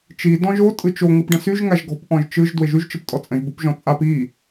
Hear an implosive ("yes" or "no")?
no